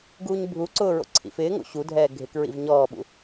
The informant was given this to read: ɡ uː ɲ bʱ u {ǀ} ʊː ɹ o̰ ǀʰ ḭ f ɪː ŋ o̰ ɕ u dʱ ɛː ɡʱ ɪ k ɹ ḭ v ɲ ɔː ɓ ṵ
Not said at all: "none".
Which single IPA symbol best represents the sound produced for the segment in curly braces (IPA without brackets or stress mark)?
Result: ǀ